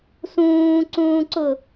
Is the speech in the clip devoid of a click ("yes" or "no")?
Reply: no